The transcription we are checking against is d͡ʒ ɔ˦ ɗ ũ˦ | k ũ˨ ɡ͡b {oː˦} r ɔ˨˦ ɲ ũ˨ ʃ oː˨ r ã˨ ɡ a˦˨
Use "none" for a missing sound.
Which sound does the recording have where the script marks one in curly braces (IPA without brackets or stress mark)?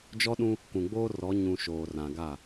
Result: oː˦